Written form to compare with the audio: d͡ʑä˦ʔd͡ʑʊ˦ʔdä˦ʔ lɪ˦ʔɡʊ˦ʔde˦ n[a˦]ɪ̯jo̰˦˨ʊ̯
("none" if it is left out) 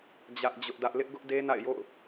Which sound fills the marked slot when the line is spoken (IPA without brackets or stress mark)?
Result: a̰˦˨